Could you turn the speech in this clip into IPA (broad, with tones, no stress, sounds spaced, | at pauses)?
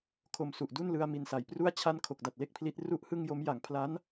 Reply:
kʰ o˨˩ m s u˨˩ ʔ d u˥˩ n l ɯ˧ a̯ m i˨˩ n s a˩˦ j p r u˥˩ a̯ t͡ɕʰ a˥˩ n kʰ o˨˩ k̚ d a˨˩ t̚ l e˥˩ k̚ pʰ l i˦˥ t̚ r u˥˩ ʔ h ɯ˥˩ ŋ j o˦˥ m j a˩˦ ŋ pʰ l a˦˥ n